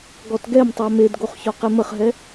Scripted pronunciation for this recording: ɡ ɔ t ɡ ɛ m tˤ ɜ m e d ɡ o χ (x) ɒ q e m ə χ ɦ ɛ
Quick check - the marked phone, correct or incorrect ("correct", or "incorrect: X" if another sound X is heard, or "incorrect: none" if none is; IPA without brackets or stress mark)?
incorrect: ç